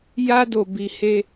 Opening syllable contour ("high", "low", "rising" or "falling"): high